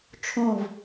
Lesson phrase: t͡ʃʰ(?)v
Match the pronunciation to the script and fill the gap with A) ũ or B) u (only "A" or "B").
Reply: A